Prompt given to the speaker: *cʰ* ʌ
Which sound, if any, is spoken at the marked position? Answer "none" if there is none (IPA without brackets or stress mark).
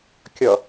kʲ